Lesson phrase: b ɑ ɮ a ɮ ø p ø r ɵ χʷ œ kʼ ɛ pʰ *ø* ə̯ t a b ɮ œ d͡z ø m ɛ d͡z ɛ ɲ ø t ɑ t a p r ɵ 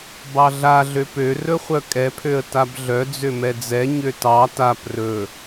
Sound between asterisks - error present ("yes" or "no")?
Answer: no